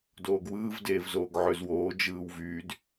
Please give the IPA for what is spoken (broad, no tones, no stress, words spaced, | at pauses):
doːɡwɯːv deːvzoːɡʕøzwoː d͡ʒɯːwvyːd